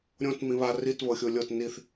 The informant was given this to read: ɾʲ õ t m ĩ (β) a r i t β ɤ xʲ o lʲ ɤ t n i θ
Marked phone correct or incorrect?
correct